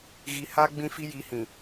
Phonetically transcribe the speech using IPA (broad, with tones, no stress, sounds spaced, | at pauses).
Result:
ɣ i˨ h a˦ ɡ͡b ĩ˦ f i˦ j i˨˦ h ĩ˨